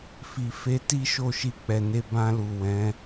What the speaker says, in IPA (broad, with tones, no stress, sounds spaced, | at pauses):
f i˨ f e˧ t i˦ ʃ o˦˨ ʃ i˧ k͡p ɛ˨ n e˧ b ã˧ l u˨ w ɛ̃˨˦